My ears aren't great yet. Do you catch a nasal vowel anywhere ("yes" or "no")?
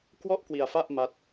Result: no